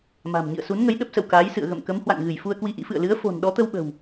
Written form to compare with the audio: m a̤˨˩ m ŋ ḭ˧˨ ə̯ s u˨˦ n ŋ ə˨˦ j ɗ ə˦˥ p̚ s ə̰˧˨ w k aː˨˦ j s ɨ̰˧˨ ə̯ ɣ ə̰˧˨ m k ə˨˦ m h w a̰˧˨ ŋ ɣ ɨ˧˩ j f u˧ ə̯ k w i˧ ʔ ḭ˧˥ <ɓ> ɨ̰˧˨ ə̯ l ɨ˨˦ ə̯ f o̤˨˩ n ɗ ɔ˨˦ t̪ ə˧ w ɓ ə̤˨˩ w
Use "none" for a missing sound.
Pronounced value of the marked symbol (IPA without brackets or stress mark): f